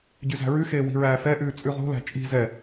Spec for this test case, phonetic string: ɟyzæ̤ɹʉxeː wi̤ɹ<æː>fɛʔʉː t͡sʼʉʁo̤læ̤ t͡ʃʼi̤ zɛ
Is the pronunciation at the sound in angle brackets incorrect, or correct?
correct